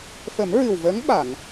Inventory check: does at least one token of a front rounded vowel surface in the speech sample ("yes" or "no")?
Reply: no